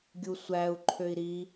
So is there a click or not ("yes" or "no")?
yes